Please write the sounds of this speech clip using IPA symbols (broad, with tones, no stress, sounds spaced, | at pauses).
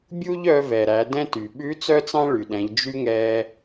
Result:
bʲ u˥ ʎ œ˧ v ɛ˩ ɾ æ˩˧ d ɛ̃˧ t y˩ ɓ ʉ˧˥ t͡s œ˥ t͡s ɑ̃˥ ɭ y˩ ɗ ɛ̃˩˧ ʎ d͡ʒ y˧ ŋ ɛ˧